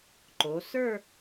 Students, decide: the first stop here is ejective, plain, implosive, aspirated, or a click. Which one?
click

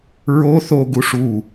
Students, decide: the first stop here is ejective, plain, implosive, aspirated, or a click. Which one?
plain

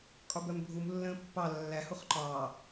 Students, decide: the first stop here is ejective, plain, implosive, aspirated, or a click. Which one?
ejective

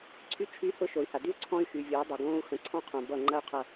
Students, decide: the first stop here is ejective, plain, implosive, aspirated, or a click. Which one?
click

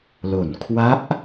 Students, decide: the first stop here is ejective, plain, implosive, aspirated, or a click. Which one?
aspirated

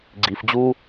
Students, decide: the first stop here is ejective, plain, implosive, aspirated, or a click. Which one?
click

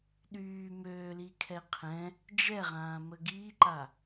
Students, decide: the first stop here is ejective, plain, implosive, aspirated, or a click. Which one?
implosive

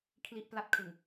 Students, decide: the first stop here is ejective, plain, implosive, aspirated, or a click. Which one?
aspirated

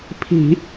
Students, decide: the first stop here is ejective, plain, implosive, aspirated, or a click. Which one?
aspirated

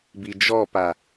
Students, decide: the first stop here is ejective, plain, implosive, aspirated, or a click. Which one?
plain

